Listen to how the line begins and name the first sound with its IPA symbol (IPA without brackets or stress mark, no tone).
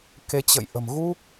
k